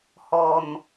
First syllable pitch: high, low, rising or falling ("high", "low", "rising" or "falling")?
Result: low